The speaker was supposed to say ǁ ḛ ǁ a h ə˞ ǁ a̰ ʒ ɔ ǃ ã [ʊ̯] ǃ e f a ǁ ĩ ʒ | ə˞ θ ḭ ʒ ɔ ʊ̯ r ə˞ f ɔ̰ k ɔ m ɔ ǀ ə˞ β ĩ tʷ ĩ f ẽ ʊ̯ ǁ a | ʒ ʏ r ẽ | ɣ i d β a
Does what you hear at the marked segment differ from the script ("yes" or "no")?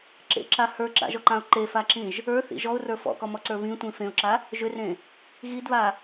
no